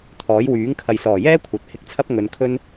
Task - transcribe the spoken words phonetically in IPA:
t̪ʰ ɔː˨˥ j w yː˨˥ ŋ kʰ ɐ˨ j s ɔː˨˩ j ɛː˥ kʷʰ ɐ˨ t̚ h ɪ˧ k̚ t͡sʰ ɐ˥ p̚ ŋ ɵ˨˧ n kʰ ɵ˥ n

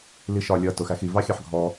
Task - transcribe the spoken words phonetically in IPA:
l i ʃ ɒ lʲ ʌ t ʊ x æ x i v ɑ xʲ ɑ ħ ɡʱ ɔ

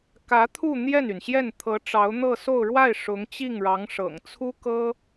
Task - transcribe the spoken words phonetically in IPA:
k ä˧˥ t̪ʰ u˥˧ n̪ j ɛ˥˩ n y˩ n ɕ j ɛ˥˩ n t̪ʰ ɤ˧˥ ʈ͡ʂ ɑ˧˥ ʊ̯ n̪ ɤ˥˧ s o˥˧ ʊ̯ ɻ w a˥˩ ɪ̯ ʂ ʊ˧˥ ŋ t͡ɕ i˥˩ ŋ ɻ ɑ˧˥ ŋ ʂ ɤ̰˨˩ ŋ t͡sʰ u˥ k ɤ˥

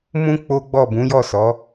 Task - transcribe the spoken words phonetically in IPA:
m ũ˦ k͡p o˦ ɡ͡b ɔ˦˨ b ũ˨˦ j ɔ˦˨ s ɔ˨˦

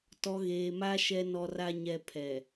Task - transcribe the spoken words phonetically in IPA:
t ɔ˨ ɣ eː˨ m a˦ ʃ ɛ˦ n ɔ˦ r a˦ ɲ ɛ˦ pʰ ɛ˨

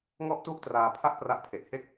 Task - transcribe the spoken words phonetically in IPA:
ŋ ɔ˦˥ ʔ t u˦˥ ʔ t r aː˧ pʰ a˥˩ ʔ p r a˦˥ ʔ pʰ e˨˩ ʔ h e˥˩ k̚

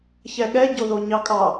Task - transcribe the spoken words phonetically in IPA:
ç ɛ ɠ ɛ ɟ o ð o ɲ ɑ kʼ ɑ

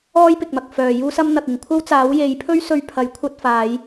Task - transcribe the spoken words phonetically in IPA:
ɔː˥ j p ɪ˨ k̚ m ɐ˨ k̚ f œː˨ j uː˥ s ɐ˥ m n̪ ɐ˨ k̚ ɪ˨ ŋ kʷʰ ɐ˥ w t͡s aː˨˥ w j e˨˥ j pʰ ɵ˥ ɥ s ɵ˧ ɥ pʰ ɐ˨˥ j kʷʰ ɐ˧ t̚ f aː˨˧ j

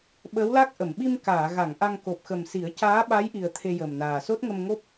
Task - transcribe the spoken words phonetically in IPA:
ɓ əː˧˥ w l a˦˥ k̚ ʔ ə˨˩˨ m ɓ i˧ m k aː˨˩˨ ɣ a˨˩˨ ŋ ʔ a˧ ŋ k o˨˩ p̚ x ə˨˩ m s i˨˩˦ ə̯ c aː˧˥ ɓ a˧˥ j ʔ i˨˩ ə̯ t̪ʰ e˧ j əː˨˩ m n aː˨˩ s o˦˥ t̚ ŋ ə˧ m ŋ o˦˥ p̚

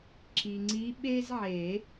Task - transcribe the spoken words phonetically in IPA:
ǁ i˨ ŋ͡ǀ i˧˥ ɓ e˥ z ʕ e˨˩˦

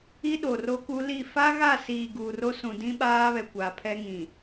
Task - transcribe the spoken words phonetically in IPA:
i˦ ɗ o˨ r o˦ k u˦ l i˦˨ f a˦ ɣ a˦˨ s iː˨ ɡ uː˨ r o˦ s ũ˨ d ĩ˦ ɓ aː˦ β ɛ˨ kʷ a˨ pʰ ɛ˦ ŋ ĩ˨

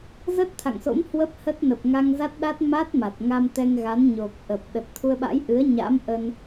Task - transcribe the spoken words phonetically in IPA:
z ə˦˥ t̚ t̪ʰ a̰˧˨ ŋ s o̰˧˥ m h w ə˦˥ p̚ h ə˦˥ t̚ n ə˨˩ p̚ ŋ a˧ ŋ z a˦˥ t̚ ɗ a˦˥ t̚ m a˦˥ t̚ m a˨˩ t̚ ŋ a˧ m t̪ ɛ˧ ŋ ɣ a˨˦ n ɲ o˨˩ k̚ ʔ ə˨˩ p̚ ɗ ə˨˩ t̚ t̪ʰ u˧ ə̯ ɓ a̰˧˥ j ʔ ɨ˨˦ ə̯ ɲ a̰˧˥ m ʔ ə˧ n

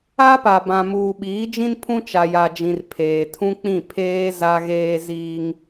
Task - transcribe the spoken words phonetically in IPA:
a˦ p a˨ b ã˨ m uː˨ ɓ iː˨˦ d͡ʒ ĩ˦ n pʰ ũ˦ t͡ʃ a˨ j a˨ d͡ʒ ĩ˨ r pʰ eː˨ tʰ ũ˦ k͡p ĩ˦˨ pʰ eː˦ z a˦ ɣ eː˦ z iː˦ ŋ

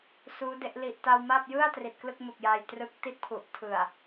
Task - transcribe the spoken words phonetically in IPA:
s uː˦˥ d e˦˥ ʔ l i˨˩ ʔ t a˧ w m a˥˩ p̚ j ɯ˥˩ a̯ t r i˨˩ t̚ k l ɯ˥˩ k̚ m u˨˩ k̚ j aː˧ j t r ɯ˦˥ k̚ t i˥˩ t̚ pʰ u˨˩ ʔ tʰ ɯ˨˩ a̯

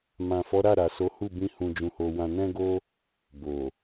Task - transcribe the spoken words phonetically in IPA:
m ã˨ f ɔ˨˦ ɾ a˦˨ ɾ a˨ s o˨˦ h u˦˨ b ĩ˧ h ũ˧ d͡ʒ ũ˧ h o˧ w ã˧ n ɛ̃˦ ɡ o˦ | b o˨

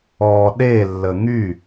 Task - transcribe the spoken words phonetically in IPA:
ɔ ɗ e lː ə ŋ y

